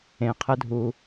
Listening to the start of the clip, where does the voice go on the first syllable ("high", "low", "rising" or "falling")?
low